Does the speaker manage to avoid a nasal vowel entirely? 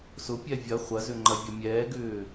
yes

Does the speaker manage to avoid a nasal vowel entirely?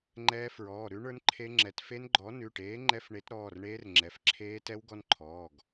yes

